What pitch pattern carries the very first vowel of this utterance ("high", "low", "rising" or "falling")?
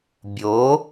rising